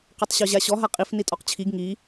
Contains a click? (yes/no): no